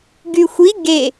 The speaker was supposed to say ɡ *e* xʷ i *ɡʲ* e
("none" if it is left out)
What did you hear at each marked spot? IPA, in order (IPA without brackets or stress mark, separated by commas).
y, ɡ